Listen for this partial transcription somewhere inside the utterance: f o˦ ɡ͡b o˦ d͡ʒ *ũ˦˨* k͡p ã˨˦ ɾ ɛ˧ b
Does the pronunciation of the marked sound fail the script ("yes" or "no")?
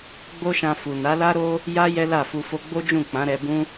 no